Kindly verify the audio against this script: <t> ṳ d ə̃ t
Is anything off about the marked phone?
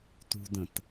no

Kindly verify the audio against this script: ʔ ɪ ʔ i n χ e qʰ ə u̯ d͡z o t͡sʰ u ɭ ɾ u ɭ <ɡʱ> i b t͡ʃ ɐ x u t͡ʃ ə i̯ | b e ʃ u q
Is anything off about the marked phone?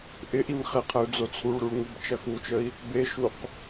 yes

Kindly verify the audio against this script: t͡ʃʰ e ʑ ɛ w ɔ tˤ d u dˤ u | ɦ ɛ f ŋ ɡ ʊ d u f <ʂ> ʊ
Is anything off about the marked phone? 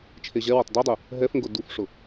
no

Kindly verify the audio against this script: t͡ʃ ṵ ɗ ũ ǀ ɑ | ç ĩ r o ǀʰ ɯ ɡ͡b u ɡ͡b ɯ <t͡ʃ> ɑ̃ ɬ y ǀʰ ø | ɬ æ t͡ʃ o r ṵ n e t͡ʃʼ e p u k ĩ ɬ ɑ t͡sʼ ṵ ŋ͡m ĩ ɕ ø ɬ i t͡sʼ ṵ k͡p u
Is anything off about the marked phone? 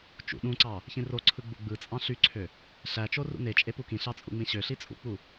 yes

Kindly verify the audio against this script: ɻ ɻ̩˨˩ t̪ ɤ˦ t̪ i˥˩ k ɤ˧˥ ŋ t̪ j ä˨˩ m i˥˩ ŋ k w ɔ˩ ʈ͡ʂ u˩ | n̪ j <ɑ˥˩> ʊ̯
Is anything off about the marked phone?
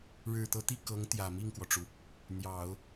yes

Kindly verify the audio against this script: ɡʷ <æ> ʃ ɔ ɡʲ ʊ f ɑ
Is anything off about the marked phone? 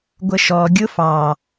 yes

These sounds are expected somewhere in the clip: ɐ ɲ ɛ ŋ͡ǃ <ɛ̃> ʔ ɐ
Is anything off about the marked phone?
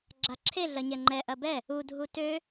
yes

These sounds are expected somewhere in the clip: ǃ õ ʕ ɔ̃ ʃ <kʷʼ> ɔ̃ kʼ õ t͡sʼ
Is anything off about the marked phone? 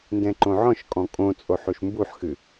yes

